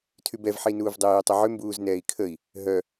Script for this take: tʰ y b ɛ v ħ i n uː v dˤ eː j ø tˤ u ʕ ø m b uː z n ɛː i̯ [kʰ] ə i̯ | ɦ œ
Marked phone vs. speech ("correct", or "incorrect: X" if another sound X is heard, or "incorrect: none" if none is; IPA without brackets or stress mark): correct